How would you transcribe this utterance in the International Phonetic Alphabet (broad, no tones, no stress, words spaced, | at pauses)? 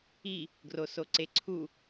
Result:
i | ɡrosoǀeǀʰu